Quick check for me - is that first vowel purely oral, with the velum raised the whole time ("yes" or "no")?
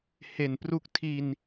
yes